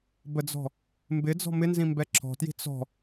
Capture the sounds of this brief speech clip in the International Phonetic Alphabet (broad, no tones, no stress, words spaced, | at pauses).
bəd͡zɔ̤ | mbɪd͡zɔ̤ mɪnzĩ mbɛǁʰɔ̤tji̤ t͡sɔ̤